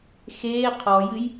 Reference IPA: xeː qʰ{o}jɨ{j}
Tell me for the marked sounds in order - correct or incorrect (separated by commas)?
incorrect, correct